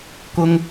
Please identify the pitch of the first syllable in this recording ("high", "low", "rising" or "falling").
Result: high